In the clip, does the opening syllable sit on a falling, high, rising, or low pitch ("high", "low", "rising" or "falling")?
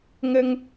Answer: high